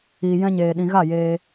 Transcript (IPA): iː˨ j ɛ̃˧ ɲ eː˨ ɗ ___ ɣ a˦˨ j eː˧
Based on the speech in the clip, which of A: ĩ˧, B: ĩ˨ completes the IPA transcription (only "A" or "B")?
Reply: B